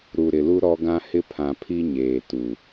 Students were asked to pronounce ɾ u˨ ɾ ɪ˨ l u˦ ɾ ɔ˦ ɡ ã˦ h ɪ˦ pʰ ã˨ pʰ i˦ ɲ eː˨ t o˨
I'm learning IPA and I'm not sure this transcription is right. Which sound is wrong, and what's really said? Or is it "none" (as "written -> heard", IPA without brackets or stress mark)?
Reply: o˨ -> u˨